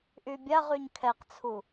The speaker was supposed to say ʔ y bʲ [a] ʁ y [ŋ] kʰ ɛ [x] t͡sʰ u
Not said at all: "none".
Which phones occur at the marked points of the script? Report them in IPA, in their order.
a, ɲ, q

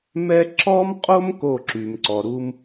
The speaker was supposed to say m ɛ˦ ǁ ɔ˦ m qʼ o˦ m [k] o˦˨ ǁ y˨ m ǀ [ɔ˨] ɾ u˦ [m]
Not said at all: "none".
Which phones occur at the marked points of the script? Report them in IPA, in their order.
k, ɔ˨, m

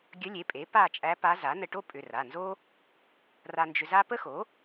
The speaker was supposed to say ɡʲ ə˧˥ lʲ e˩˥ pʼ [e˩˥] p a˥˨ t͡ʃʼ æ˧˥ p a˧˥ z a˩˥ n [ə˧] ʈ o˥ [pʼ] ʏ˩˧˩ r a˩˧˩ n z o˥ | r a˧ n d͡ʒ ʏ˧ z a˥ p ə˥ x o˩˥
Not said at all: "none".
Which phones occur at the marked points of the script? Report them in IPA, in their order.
e˩˥, ə˧, pʼ

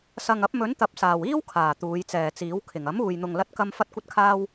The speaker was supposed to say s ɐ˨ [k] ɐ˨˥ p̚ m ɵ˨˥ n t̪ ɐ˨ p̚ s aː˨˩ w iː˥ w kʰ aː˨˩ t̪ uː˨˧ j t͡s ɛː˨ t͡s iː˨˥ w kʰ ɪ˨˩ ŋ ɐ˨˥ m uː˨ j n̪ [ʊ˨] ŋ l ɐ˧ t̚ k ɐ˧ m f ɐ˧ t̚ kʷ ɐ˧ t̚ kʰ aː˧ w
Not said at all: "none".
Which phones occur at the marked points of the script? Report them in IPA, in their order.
ŋ, ʊ˨

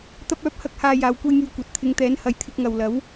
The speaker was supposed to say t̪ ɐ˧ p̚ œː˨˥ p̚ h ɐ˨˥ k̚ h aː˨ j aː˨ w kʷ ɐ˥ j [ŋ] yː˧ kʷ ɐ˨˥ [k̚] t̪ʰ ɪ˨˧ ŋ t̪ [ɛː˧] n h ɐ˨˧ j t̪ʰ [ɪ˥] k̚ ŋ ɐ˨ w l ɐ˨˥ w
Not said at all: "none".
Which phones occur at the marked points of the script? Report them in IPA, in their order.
ŋ, t̚, ɛː˨˥, ɪ˧

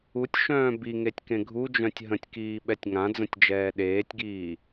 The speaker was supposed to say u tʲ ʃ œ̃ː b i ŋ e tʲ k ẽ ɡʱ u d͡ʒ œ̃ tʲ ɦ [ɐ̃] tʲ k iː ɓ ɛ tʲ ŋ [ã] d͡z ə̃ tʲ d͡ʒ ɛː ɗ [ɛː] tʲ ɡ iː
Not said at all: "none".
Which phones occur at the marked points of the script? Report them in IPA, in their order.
ə̃, ã, eː

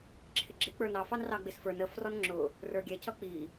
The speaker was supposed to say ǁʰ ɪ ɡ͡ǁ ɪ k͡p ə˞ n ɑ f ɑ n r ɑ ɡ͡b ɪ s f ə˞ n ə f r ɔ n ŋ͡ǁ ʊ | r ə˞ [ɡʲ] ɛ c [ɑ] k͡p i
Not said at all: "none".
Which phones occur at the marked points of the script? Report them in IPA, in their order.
ɡʲ, ʌ

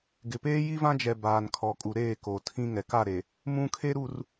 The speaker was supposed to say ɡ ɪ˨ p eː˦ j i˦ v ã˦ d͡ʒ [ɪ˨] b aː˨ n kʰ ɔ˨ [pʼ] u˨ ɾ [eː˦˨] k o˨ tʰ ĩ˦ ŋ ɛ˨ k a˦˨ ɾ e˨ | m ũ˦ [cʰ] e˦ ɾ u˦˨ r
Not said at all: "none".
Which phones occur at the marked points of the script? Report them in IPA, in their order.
ɛ˨, kʼ, eː˦˨, kʰ

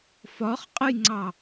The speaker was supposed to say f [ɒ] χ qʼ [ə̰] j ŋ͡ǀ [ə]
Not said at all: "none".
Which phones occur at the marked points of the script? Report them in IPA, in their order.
ɒ, ə, ɑ

